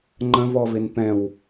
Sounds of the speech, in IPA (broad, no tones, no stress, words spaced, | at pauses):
ŋ͡ǃə̃vɔvɪn pɛ̃w